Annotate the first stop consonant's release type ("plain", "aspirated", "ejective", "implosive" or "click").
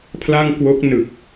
aspirated